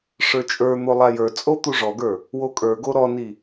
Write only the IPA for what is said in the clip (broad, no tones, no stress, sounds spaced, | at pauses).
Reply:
ʂ ə˞ t͡ʃʼ ə˞ n̪ o lˠ a j ə˞ t͡sʼ o t̪ u ʐ ɔ ɡ ə˞ | w o kʼ ə˞ ɡ o ɾ ɔ n i